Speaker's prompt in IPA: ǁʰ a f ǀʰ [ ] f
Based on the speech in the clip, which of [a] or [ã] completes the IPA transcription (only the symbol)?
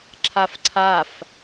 a